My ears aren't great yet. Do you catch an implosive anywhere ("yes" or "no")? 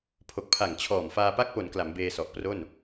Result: no